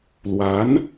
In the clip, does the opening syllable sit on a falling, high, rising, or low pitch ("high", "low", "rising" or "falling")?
rising